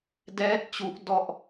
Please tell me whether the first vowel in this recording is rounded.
no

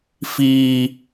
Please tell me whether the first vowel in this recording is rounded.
no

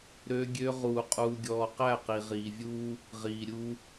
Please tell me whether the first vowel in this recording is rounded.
yes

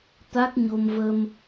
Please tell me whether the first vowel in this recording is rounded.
no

